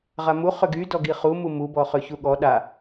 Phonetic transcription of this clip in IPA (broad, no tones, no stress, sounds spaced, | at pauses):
ʁ a m u χ ʏ ɡ y d ɔ ɡ i χ u m u m u b ɔ χ ø ç u ɠ ɔ ɗ a